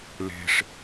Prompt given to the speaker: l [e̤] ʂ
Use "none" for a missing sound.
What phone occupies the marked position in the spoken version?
e̤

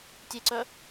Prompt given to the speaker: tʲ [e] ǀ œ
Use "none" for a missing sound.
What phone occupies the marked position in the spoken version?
e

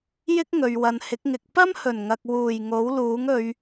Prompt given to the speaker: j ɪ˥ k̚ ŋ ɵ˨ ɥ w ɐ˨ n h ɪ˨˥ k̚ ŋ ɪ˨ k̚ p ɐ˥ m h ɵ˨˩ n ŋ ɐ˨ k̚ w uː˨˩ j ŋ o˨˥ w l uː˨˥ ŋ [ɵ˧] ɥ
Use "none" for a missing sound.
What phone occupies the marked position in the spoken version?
ɵ˨˧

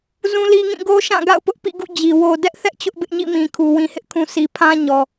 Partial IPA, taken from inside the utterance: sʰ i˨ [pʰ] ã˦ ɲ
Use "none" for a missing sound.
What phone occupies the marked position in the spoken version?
pʰ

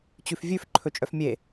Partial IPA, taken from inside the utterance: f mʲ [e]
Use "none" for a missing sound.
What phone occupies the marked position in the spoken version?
e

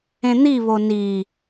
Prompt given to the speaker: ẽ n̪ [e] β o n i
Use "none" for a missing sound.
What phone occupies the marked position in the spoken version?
i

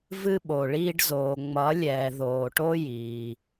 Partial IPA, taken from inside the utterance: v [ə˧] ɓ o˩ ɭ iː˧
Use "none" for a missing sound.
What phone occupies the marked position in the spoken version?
ɨ˧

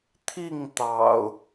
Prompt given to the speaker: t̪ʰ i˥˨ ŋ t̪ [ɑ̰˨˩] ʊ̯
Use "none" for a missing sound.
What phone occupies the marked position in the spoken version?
ɑ̰˨˩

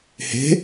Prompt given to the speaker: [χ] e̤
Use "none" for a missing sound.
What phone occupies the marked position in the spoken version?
h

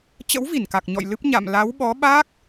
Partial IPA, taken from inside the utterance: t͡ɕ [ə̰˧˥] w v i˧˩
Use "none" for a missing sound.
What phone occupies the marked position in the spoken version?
ə̰˧˥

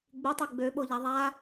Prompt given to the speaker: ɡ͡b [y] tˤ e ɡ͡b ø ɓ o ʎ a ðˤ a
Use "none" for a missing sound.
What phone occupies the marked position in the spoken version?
y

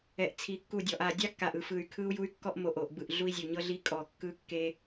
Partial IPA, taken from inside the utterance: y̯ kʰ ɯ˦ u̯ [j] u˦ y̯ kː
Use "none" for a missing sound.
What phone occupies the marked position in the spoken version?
j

